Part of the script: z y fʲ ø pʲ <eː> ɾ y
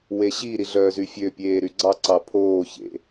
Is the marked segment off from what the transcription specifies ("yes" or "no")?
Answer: no